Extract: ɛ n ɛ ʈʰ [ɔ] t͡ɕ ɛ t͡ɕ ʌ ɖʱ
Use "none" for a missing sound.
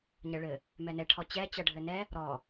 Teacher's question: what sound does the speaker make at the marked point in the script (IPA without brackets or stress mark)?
ɔ